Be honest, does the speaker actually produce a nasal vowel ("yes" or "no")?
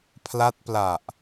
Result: no